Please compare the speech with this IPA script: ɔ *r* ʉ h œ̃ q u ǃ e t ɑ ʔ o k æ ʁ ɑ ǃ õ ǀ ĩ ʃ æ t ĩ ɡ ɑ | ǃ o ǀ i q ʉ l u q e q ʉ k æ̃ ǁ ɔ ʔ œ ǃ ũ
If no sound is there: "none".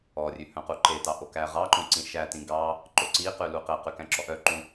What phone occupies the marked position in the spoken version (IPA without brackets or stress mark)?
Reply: rʲ